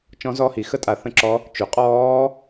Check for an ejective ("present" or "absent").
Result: present